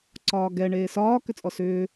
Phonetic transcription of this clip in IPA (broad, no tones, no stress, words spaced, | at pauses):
ǀɒːɡɛ ɳeːsɒː kʏt͡sʼɔsʏː